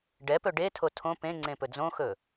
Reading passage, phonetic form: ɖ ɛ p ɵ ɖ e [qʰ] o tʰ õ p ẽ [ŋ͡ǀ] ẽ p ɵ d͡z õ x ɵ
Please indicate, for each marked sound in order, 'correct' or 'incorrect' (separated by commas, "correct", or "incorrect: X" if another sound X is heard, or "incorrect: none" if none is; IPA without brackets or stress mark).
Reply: incorrect: tʰ, correct